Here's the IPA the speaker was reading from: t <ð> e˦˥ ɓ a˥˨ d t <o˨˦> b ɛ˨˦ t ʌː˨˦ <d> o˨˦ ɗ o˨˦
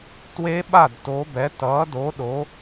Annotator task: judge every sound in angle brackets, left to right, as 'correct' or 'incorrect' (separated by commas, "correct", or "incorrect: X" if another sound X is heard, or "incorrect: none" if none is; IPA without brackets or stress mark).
incorrect: w, correct, correct